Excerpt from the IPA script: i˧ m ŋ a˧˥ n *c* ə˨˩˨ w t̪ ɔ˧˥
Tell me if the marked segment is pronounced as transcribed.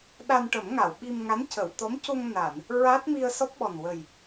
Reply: yes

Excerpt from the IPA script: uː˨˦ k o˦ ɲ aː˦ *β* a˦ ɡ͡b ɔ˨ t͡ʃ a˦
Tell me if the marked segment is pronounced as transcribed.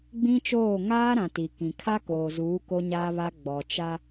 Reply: yes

